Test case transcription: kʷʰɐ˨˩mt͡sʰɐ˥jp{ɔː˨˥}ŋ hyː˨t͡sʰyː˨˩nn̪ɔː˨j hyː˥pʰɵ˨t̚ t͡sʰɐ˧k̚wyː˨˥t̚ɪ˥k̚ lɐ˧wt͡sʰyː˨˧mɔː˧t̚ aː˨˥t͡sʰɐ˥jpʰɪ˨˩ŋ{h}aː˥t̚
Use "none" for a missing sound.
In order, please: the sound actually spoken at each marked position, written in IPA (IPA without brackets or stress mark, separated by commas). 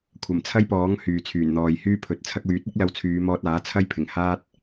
ɔː˨˥, h